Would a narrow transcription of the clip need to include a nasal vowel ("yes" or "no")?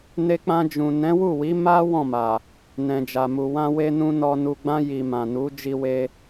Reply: yes